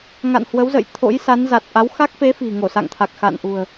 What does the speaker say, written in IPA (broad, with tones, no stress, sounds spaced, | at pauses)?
ŋ a̰˧˨ n h w ə˨˦ w z ə̰˧˨ j t̪ʰ o̰˧˥ j s a˨˦ n z a˨˩ t̚ ʔ a˨˦ w x a˦˥ k̚ f e˨˦ f i̤˨˩ ŋ o˧˩ s a̰˧˨ ŋ t̪ʰ a˨˩ k̚ x a̰˧˨ n ʔ ṳ˨˩ ə̯